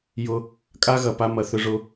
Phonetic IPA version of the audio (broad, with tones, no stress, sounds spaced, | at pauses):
j ʊ˧ | kʼ a˦ ɣ ɐ˧ p a˦ m ɐ˧ θ ʏ˦ ʐ ʊ˦